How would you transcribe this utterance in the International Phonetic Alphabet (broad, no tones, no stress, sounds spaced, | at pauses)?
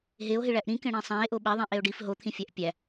ɦ e o̯ ɦ i ɭ æ ʔ ɾ ĩ k ẽ ɽ ĩ sˤ æ̃ e̯ ʔ o ɓ e ðˤ ẽ ʔ e o̯ ɖ i f ɦ o t̪ʰ ĩ fʲ æ ʔ pʲ æ